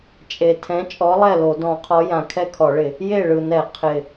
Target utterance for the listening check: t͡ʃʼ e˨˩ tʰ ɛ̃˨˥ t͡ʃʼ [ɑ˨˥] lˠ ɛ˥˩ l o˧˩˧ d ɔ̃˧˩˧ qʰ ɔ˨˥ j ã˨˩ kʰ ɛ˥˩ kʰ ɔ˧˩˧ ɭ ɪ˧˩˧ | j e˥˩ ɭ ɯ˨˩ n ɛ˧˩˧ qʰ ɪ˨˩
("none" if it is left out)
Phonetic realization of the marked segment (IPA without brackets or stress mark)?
ɔ˨˥